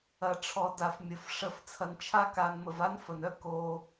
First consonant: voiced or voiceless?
voiceless